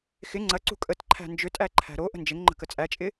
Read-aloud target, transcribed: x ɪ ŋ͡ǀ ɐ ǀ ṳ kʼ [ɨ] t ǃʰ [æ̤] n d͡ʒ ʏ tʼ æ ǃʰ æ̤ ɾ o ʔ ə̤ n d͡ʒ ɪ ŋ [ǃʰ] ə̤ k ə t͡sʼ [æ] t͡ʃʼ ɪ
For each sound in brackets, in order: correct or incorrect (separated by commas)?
incorrect, correct, incorrect, correct